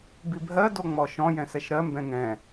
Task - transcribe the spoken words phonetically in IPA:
b i bʱ ɜ d o ŋ͡m ɔ ʃ ɔ̃ j ɛ̃ s ɛ ʃ ɾ ɜ m b ɛ̃ ŋ ɛ̃

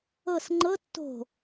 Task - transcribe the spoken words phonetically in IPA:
ɤ s ŋ͡ǃ ɤ tː o̤

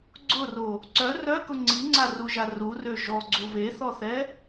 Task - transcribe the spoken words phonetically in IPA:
ɡ͡ǀ ʊ r o | ǀ œ r œ k ʊ ŋ͡ǀ i ŋ͡ǀ a r u ʒ a r u r ø ʒ ɔ ɡ͡ǀ u β e θ ɔ θ ɛ

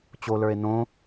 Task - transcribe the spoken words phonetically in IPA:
t͡ɕ o l ə˞ e̯ n õ

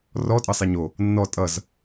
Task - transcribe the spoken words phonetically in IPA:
r ɔ tʼ ʌ sˤ e ɲ o | nː ɔ tʼ ʌ z

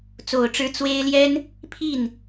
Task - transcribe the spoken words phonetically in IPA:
t͡s o˨˩ ʊ̯ ʈ͡ʂ ɻ̩˧˥ t͡s w e˥ ɪ̯ l j ɛ˥ n | pʰ i˥˩ n

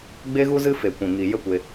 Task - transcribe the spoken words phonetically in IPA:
ɡ͡b e˦ ɣ u˦ z ɨ˦ f e˨ kʷ ĩ˨ ŋ i˨ j ə˦ kʷ e˧

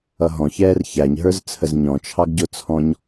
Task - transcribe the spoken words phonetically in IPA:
ʌ ɦ ɔ̃ ç ɛː r ç æ ɲ ɦ ə˞ z t͡sʰ ə z ɲ ɔ̃ t͡ʃʰ ɑ ɡ ɟ ʊ t͡sʰ ɔ̃ ɲ

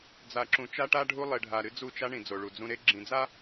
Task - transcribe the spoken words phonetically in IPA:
d͡z a˨ ǁ ũ˨ t͡ʃ a˦ ʈ a˦ ɖʱ u˦ lˠ e˨ ɖʱ a˨ ɾ ɨ˦ d͡z u˦˨ t͡ʃ a˦ ɳ ĩ˨ d͡z o˨ ɭ u˨ d͡z ũ˦ ɾ e˦ ɡ͡ǁ ĩ˨ d͡z a˦

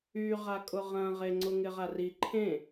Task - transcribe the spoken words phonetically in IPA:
y ʁ a kʼ ʊ ʁ ɐ̃ ʁ e ŋ͡ǀ ʊ ŋ ɪ ʁ a r i ǃʰ ẽ

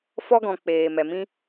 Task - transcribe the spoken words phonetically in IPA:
f ɔ˧ ɡ ɔ̃˨ k͡p eː˨ m ɛ˨ m ĩ˦

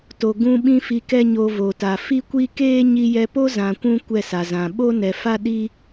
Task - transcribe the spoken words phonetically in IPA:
t o˨ ɡ ũ˧ ɓ ĩ˧ f i˧ k ɛ˦ ɲ o˧ v o˨ t a˨ f i˦ kʷ i˦ k eː˦ ɲ i˧ j ɛ˧ p o˦ z ã˨ kʷ ũ˧ kʷ ɛ˦˨ s a˨ z ã˨ ɓ o˦ n ɛ˨ f a˦ ɗ i˦

